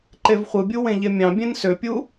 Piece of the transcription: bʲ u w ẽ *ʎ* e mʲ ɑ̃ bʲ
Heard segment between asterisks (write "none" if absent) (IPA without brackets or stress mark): ʎ